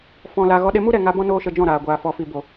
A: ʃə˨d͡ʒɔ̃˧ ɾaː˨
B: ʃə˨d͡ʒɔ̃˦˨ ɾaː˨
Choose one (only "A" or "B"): B